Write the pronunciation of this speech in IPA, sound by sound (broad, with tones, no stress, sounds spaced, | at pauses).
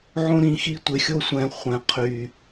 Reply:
ʕ õ˦ ɾ ĩ˨ x i˦ tʷ ɪ˨ xʲ o˦ sʷ ɛ̃˨ χʷ ɛ̃˨ qʰ y˨